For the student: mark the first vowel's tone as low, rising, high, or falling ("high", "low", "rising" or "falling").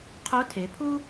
rising